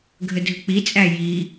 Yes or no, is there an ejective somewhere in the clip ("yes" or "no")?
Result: yes